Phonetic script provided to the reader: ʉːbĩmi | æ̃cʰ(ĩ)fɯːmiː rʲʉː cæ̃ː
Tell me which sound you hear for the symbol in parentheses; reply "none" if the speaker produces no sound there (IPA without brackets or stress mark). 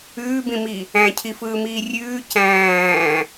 i